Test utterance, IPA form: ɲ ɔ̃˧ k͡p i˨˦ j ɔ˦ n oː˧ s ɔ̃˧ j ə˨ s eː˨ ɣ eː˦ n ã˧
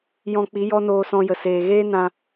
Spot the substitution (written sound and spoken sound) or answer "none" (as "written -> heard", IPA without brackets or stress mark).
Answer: ɲ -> j